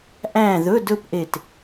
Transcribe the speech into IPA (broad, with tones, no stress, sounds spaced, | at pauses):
ʔ æ̃˥˨ ð ɵ˧˥˧ d ɵ˥˨ p ʔ e˧˩ t